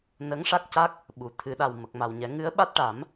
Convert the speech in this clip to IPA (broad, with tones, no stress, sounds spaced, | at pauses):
n ə˧˥ ŋ ʂ a˦˥ k̚ c a˦˥ k̚ | ɓ u˨˩˨ t̪ʰ ɨ˨˩˨ ɗ a˨˩ w m ə˨˩ k̚ m a˨˩ w ɲ ɛ˨˩˦ ŋ ɨ˧˥ ə̯ ɓ a˦˥ t̚ ʈ a˨˩˦ m